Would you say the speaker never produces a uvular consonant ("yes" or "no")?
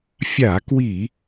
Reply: yes